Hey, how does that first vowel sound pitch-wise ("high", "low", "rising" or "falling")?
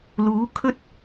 rising